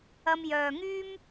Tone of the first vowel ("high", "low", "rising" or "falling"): high